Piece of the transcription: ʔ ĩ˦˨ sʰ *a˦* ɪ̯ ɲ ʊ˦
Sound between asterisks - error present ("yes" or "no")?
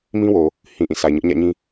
yes